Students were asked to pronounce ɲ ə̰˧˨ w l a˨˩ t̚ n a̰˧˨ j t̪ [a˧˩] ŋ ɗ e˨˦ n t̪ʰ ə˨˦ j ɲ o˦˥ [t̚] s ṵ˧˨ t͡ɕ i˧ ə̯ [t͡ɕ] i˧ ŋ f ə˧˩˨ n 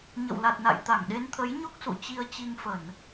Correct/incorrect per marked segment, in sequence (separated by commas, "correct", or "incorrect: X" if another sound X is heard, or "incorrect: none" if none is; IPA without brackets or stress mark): correct, incorrect: k̚, correct